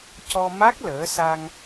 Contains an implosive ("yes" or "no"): no